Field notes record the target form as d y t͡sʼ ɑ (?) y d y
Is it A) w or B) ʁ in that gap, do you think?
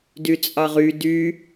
B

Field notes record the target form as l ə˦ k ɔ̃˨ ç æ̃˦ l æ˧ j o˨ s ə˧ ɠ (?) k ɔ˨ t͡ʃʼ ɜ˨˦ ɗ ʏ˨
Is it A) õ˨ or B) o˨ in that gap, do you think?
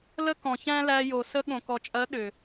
A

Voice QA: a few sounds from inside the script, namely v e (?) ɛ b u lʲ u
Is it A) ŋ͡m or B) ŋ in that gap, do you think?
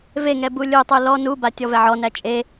B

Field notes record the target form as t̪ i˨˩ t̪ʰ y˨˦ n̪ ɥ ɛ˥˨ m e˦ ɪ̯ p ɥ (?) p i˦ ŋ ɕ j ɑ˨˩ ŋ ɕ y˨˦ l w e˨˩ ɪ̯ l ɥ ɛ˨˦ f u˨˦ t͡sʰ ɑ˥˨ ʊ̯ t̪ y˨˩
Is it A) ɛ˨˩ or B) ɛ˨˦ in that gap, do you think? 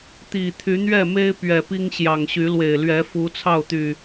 A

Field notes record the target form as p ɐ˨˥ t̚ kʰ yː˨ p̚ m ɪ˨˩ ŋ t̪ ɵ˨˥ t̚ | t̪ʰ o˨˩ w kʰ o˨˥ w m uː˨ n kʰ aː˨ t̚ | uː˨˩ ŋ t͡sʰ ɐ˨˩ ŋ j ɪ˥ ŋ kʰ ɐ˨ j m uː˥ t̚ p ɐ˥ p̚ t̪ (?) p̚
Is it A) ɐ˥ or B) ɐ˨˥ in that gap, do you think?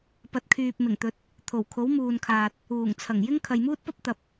B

